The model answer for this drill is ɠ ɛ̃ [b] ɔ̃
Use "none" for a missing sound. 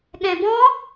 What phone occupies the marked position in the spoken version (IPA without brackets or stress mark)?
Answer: b